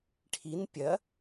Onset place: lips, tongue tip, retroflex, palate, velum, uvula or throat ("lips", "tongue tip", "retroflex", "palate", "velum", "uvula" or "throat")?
retroflex